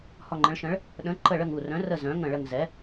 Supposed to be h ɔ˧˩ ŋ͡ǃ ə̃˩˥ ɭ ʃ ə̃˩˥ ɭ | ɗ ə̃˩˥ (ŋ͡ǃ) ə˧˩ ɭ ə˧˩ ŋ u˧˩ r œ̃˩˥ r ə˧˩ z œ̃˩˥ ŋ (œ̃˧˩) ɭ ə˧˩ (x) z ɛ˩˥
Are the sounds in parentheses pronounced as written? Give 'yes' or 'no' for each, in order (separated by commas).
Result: no, no, no